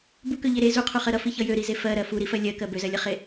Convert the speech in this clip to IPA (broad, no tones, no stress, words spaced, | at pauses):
bukøʎe ɾe zuqʰuχɜ ɾʌfiçʌ jøɾize fɜɾɜ fuɾifɜ lʲɜkɜ bøzɜlʲʌχe